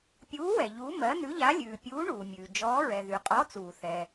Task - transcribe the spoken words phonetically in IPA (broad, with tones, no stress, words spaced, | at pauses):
pʲuː˨˥wɛ˩ ʎu˨˥ mɜ˨˥ nʉ˨˥ʎa˨˥lʲʉː˩ pʲuː˨˥ ɳuː˩mʲʉː˩ d͡ʒɔː˨˥ɹɛ˩ ðy˩qʼɔ˨˥ t͡suː˩θɛ˩